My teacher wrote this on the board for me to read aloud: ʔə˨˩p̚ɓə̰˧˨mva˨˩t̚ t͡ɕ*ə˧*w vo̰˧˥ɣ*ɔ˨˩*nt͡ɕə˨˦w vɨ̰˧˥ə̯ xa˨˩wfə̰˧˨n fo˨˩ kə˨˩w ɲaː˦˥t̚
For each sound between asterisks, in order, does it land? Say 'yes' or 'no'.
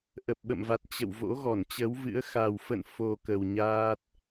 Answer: no, no

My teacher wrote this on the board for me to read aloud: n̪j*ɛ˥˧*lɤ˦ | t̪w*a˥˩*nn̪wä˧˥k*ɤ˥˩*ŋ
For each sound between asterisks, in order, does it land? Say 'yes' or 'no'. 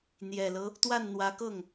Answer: no, yes, yes

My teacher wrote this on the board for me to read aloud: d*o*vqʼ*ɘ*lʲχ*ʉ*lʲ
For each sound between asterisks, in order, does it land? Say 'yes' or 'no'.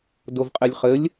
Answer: yes, no, no

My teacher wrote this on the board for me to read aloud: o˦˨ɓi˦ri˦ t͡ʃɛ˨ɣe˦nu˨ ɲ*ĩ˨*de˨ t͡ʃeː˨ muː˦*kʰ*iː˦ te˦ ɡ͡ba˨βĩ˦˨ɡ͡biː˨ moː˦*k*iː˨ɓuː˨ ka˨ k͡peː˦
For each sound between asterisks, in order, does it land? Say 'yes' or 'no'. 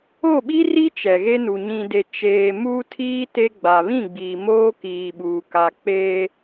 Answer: yes, no, yes

